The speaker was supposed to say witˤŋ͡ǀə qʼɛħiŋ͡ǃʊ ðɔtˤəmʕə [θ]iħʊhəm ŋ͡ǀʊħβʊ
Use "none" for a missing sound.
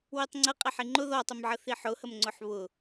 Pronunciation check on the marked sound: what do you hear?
θ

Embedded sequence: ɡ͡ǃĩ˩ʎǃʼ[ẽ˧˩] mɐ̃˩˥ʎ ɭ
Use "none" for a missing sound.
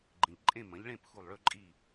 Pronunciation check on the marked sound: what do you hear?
ẽ˥˨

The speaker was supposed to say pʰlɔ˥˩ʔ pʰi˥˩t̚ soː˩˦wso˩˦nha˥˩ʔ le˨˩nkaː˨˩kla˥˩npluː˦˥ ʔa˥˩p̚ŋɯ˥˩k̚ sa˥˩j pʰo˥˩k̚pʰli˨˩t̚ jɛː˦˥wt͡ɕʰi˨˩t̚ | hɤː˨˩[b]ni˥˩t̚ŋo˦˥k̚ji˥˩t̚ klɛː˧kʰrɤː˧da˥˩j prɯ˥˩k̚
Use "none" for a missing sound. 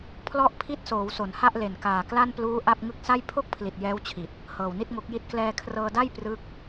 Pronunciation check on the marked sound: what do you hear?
w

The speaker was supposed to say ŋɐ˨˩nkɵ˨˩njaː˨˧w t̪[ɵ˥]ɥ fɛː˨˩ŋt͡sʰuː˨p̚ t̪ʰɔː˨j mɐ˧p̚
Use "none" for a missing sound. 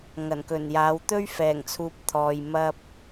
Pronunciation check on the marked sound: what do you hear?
ɵ˥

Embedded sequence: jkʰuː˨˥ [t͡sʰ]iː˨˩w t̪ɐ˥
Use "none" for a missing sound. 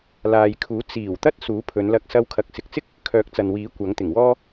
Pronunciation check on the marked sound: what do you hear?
t͡s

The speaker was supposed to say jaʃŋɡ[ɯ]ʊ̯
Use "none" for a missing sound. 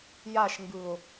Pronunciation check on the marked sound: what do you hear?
ɯ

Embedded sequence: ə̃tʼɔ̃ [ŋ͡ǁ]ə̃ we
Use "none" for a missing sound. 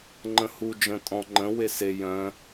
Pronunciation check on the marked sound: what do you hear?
ŋ͡ǃ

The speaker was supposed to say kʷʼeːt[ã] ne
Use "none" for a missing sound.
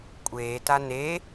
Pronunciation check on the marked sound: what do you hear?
a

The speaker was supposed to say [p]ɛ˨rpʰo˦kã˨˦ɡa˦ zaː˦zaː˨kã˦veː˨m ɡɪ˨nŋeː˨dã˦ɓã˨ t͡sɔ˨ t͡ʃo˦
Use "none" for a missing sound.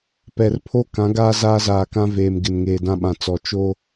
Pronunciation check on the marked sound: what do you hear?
p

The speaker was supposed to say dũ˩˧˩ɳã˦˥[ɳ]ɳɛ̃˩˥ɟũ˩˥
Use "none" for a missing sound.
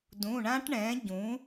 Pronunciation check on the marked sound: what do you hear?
ʈ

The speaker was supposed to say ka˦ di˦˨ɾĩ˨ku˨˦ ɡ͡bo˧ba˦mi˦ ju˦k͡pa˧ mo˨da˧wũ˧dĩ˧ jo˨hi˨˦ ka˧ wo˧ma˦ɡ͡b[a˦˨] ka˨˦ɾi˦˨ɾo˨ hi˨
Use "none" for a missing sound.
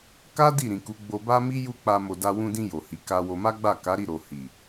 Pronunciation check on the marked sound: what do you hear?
a˦˨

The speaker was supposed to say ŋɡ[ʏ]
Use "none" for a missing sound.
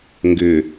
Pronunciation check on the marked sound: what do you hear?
ʏ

